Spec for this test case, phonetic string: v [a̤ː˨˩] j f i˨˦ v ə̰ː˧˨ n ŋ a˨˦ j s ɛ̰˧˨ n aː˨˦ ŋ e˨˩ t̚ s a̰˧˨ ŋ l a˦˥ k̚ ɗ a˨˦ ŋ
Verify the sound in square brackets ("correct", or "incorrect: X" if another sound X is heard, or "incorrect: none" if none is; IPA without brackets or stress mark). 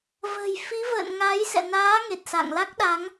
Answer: incorrect: ə̤ː˨˩